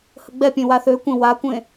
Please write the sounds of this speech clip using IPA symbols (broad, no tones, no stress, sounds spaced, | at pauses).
h ə ɡ͡b ɛ pʲ ẽ w a θ ø kʷ ẽ w a kʷ ẽ